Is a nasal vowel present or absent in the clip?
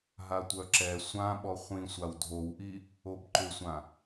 present